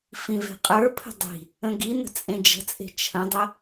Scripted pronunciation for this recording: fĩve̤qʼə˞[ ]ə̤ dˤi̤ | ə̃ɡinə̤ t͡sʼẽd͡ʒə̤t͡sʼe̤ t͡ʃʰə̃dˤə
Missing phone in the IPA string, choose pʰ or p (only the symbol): pʰ